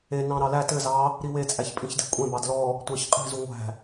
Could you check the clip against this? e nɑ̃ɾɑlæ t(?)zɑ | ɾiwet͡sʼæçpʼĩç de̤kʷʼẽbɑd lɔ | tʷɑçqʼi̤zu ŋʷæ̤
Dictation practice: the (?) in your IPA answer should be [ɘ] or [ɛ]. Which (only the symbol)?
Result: ɘ